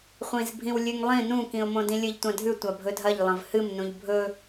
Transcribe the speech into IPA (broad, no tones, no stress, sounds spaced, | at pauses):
χʷ ĩ z bʱ ĩ w lʲ ʉ ŋ lˠ ĩ n ũ k ĩ ʊ̯ m õ d ĩ lʲ ɨ ʎ tʷ ã dʱ ʉ tʷ a bʱ ɵ dʱ ɐ ʎ lˠ ɐ̃ v h ɨ m n ũ ʎ bʱ ɵ